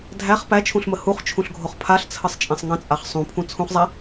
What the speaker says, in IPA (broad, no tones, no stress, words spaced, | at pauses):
dʱæχ pæt͡ʃʰũɬmə huχt͡ʃʰũɬɡʱoχ pʰaɬt͡sʰəsˤt͡ʃʼɛ̃sˤ ŋə̃t͡sʼaχ sˤũpʰũ t͡sʰũχzˤæ